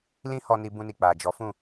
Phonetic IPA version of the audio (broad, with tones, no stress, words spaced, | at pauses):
lĩ˦hɔ˧ ni˧ bũ˧ni˨ k͡pa˨d͡ʒɔ˨˦ fũ˦˨